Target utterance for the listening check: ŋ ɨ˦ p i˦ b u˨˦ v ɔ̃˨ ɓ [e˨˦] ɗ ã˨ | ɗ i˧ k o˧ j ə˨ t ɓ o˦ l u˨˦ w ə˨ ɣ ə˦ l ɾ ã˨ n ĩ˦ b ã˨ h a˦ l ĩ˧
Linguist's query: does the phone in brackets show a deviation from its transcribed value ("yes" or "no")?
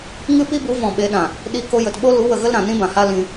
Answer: no